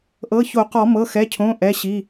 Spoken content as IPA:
ʔ ɤ˩˧˩ ç o˨˩˦ q ɔ˨˩˦ m ɤ˩˧˩ x ɛ˩˧˩ cʰ õ˩˧˩ ʔ ɛ˩˧˩ ɕ i˩˧˩

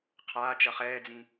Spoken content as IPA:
qʰ aː t͡ʃ ʌ χ ɛː d͡z ĩ

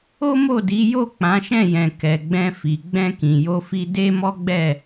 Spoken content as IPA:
o˦ m o˦˨ d i˨˦ j o˦˨ k͡p ã˨˦ ʃ ɛ̃˦˨ j ɛ̃˨ k ɛ˨ ɡ͡b ɛ̃˧ f i˨ ɡ͡b ɛ̃˧ k ĩ˨ j o˧ f i˧ d e˦ m ɔ˦ ɡ͡b ɛ˦˨

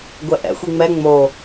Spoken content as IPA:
ɡʷ ɛ ʔ ɛ̰ xʷ i ŋ͡m ɛ ŋ͡m o

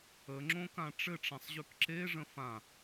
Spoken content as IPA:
ə ŋ͡ǁ õ k ã ʈ͡ʂ ɘ ʈ͡ʂ ã sˤ ʑ ʉ k ǁ e ʐ ə̃ f ã

